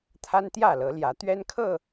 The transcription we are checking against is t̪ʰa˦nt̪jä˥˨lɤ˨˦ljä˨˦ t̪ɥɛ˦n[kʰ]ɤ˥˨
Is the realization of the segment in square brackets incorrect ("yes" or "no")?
no